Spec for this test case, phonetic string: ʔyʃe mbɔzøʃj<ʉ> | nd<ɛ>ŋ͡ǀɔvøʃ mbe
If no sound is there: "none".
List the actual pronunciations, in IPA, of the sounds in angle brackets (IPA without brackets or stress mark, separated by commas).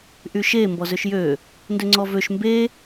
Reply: ø, ø